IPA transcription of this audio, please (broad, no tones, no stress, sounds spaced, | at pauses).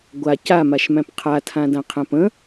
ɡʷ a c a m a ʃ m æ̃ p qʰ a tʰ ã d ã qʰ æ̃ p ə̃